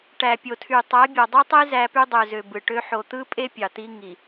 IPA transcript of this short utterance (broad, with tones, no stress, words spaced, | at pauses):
ʈæ˨pʲo˨tʰy˨ tˤæ˨˦bʲɑ˨dˤy˦tˤi˦ zæ˦py˦dˤø˨zø˨ bɯ˨ʈø˦ ħo˨t̪ɯ˦pʼe˦ pʲɑ˨t̪i˦ ŋi˨